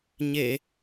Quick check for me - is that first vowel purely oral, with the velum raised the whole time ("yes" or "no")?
yes